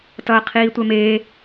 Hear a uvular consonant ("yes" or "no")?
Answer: yes